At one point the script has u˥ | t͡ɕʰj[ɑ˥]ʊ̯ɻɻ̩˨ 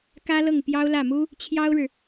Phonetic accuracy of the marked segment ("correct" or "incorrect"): correct